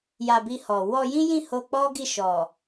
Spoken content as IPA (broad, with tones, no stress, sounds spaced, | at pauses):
j a˧ b i˧ h ɔ˨ w ɔ˧ j ĩ˦ j ĩ˦˨ h o˧ k͡p ɔ˦ ɡ i˦˨ ʃ ɔ˨